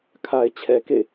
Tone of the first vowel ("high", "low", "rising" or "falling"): low